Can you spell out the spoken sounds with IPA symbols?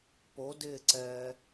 p o d ɪː ǀ ɛː

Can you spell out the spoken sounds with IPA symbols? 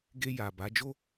ɡ e˧ j a˨ b a˨˦ d͡ʒ o˦

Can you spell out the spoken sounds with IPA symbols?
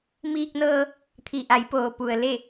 m iː˧ k̚ n ɤː˧ | t̪ʰ i˩ ʔ a˩˧ j p oː˩ p u˩ ə̯ l e˧˩

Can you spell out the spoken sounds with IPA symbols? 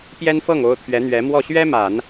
p j ɛ˥ n f ɤ˥˩ ŋ o˥ ʊ̯ t̪ʰ ɥ ɛ˧˥ n̪ ɥ ɛ˧˥ m w ɔ˥˩ ɕ ɥ ɛ˥ m a˨˩˦ n

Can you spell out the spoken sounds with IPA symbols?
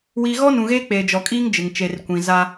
w i˨ ɣ ɔ˦ n ũ˨ ɣ eː˦ k͡p eː˨ d͡ʒ ɔ˨ kʼ iː˦ ŋ d͡ʒ ɪ˨ ŋ t͡ʃ e˨ r kʷ ĩ˨ z a˦

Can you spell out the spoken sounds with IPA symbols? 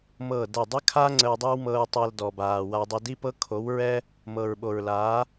m ɤː˦˨ d ɛ˦˨ dˤ ə˦ kʰ a˦ ŋ͡ǀ ə˧ w dˤ ʉ˦ w m ɤ˧ ɹ tˤ a˧ l d ɔ˨ b aː˨ w a˧ dˤ ə˧ d i˦ p ɤ˦ kʰ o˨˦ w ɹ ɛ˦ | m ɤ˨ ɹ ɓ o˨ ɹ l aː˨˦

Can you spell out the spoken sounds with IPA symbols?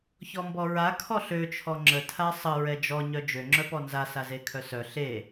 ç ɔ m b ɔ ɹ a kʰ ɔ ɬ ø t͡ʃʰ ɔ ŋ͡ǁ ə tʰ a sˤ ə ɹ ɛ d͡ʒ ɔ ɲ œ d͡ʒ ø ŋ͡ǁ œ p ɔ n z a s a z e kʰ œ s œ ɬ e

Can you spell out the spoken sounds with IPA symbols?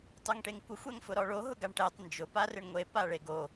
tˤ o ŋ ʈ e ŋ kʷ ɪ xʷ ɛ ŋ f ʊ ɾ ɔ ɭ o ɦ ʊ ɡ a ɳ ʈ ɛ tˤ n d͡ʒ ʊ p a r ɪ ɳ ŋʷ e p a ɭ e ɡ o

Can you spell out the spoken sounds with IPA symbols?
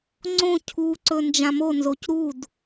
ŋ͡ǀ õ cʰ u ǀ ɵ n d͡ʒ ã m o n z o c ɾ u d

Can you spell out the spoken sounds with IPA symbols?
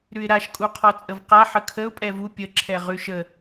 ɾ ʉ ɪ̯ ɾ a ʃ kʼ u qʰ ɔ t͡sʼ ə v q a ħ ə kʰ ə ʊ̯ pʼ ɛ v u pʲ ə ǁʰ ɛ ʁ ʉ ʃ ə

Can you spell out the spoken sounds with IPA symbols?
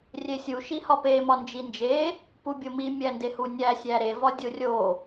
rʲ e sʲ u ʃ i h ɒ p e m ɒ n d͡ʒ i n d͡ʒ e | p u bʲ o m i mʲ æ n d e h u nʲ æ sʲ æ ɾ e v ɒ dʲ o rʲ o

